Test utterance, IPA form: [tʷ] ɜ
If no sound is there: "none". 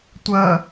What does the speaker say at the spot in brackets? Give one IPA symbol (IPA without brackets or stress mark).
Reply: tʷ